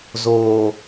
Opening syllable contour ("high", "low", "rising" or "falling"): low